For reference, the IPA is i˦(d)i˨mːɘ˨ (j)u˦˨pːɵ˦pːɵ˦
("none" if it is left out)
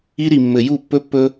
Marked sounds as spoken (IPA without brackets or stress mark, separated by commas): ɾ, j